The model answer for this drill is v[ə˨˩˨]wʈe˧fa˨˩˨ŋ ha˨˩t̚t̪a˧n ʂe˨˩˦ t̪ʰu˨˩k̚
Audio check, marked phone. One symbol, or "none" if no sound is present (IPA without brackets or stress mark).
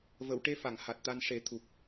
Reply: ə˨˩˨